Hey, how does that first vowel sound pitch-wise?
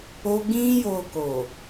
high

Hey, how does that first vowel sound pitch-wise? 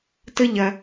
high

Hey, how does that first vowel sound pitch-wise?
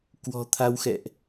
low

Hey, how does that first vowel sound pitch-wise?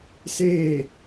falling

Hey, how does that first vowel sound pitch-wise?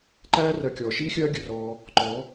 high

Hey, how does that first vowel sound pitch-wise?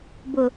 low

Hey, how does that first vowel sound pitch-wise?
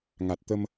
low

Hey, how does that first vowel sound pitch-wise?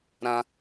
high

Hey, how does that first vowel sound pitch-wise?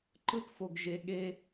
high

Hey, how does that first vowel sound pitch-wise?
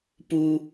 high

